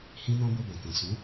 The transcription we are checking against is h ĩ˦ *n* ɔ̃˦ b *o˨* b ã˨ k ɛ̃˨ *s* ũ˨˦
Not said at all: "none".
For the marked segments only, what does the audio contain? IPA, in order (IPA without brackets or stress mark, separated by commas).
n, o˧, s